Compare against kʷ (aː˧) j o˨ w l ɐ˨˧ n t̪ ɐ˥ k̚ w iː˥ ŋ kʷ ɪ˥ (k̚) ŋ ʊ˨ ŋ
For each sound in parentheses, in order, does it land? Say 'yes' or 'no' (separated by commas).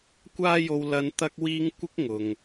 yes, yes